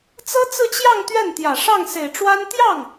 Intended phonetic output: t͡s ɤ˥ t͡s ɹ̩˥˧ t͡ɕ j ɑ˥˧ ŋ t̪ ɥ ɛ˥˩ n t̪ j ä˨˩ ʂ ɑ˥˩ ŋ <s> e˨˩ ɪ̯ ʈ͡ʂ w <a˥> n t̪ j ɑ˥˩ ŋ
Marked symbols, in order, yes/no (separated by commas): yes, yes